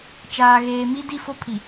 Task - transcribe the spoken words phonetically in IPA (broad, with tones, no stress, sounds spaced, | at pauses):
t͡ʃ aː˨ ɣ eː˨ m i˦ d i˦˨ f o˦ pʰ i˨